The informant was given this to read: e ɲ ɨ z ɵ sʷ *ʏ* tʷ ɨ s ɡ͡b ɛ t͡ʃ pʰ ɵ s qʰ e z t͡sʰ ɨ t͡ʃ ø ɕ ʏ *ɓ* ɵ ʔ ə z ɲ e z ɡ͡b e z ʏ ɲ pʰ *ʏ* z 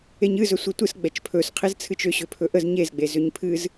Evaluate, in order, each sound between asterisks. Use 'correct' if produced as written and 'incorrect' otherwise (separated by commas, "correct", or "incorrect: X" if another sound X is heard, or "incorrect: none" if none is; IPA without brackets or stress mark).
incorrect: ɨ, incorrect: pʰ, incorrect: ɨ